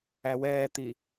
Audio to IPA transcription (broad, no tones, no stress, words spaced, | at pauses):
æwɛːt̪i